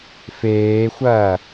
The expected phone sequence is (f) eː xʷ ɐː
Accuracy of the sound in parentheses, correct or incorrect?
correct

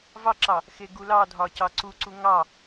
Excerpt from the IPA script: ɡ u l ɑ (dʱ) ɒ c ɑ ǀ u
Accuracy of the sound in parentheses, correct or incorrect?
correct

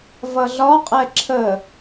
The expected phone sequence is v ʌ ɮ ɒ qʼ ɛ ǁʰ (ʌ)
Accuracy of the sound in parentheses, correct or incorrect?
incorrect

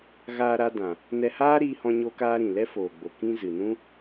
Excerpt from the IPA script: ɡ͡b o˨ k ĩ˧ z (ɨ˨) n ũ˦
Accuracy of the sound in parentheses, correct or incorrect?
correct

